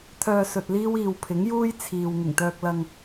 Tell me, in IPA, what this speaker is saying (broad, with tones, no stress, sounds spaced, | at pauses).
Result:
t̪ʰ œː˧ s ɵ˨ t̚ l iː˥ w iː˨ w pʰ ɪ˨˥ ŋ j uː˥ j t͡sʰ iː˨ w ŋ ɪ˨˩ ŋ t̪ œː˧ k̚ l ɐ˧ ŋ